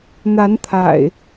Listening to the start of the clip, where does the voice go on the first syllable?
rising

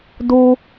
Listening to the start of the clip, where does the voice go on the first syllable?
high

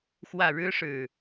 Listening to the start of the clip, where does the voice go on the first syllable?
falling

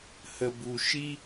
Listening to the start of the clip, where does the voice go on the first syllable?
low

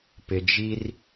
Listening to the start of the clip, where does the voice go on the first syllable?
low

